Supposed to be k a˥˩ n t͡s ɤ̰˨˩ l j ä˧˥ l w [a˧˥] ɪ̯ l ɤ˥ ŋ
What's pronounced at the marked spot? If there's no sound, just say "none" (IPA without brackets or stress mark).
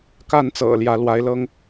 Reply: a˧˥